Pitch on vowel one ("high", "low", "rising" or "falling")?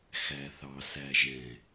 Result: low